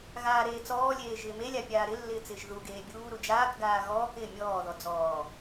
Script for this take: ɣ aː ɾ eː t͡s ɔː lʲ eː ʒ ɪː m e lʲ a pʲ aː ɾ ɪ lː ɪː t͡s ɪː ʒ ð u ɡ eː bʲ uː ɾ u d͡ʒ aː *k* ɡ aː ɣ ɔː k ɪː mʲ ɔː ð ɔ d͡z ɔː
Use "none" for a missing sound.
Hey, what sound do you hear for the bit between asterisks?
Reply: k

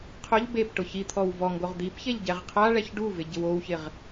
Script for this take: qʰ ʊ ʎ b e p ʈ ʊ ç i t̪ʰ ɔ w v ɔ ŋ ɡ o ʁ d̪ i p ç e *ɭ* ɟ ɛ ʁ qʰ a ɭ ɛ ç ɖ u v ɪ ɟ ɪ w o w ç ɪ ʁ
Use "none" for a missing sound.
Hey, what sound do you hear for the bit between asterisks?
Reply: ʎ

